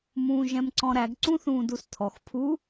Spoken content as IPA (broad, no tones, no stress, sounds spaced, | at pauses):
m ũː ʒ ɛ̃ m ǀ ɔ̃ ɾ æ ɡ ǀ ũ θ ũː d u s tʰ ɔ x pʰ u